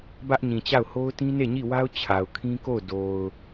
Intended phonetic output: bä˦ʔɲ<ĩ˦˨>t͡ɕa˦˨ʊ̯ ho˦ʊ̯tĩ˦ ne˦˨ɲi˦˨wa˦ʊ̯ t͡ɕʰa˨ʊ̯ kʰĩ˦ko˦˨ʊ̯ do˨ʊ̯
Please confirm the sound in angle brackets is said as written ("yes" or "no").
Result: no